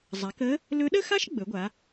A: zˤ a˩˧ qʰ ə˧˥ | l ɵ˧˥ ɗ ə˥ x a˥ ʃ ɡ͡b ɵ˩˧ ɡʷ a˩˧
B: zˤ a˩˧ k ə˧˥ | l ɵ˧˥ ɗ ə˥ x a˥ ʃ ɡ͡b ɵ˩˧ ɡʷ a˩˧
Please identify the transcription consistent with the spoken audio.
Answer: B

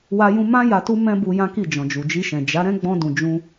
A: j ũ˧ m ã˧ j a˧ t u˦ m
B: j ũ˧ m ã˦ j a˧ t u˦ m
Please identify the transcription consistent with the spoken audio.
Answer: B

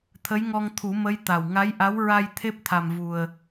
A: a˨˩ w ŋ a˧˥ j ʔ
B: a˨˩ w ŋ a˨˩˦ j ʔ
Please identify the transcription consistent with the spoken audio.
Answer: A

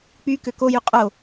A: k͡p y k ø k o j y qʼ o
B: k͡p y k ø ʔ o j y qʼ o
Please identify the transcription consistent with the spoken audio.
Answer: A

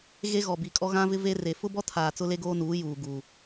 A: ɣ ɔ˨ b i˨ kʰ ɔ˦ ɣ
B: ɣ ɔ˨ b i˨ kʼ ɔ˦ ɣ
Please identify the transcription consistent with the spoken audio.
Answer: B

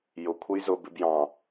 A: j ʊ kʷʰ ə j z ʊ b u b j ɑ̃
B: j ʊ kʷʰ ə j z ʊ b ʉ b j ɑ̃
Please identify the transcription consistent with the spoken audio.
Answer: B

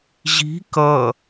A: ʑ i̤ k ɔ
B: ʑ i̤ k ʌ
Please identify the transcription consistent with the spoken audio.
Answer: B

